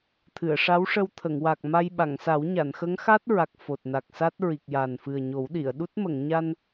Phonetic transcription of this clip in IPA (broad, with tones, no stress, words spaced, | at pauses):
t̪ʰɨ˨˩˨ə̯ʂa˧˥wʂə˧w t̪ʰə˨˩˨ŋwa˨˩k̚ma˧j ɓa˨˩˨ŋsa˨˩˦wɲa˨˩˨n xə˧˥ŋxa˦˥t̚ɹa˨˩k̚ fo˨˩t̚na˨˩k̚sa˦˥t̚ ɹi˨˩k̚ja˨˩n fɨ˨˩ə̯ɲo˨˩˦wɗi˨˩˨ə̯ɗu˦˥t̚ mə˨˩˨ŋɲa˧n